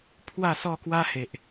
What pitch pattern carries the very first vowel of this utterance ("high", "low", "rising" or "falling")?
falling